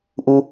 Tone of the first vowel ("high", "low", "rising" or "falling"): low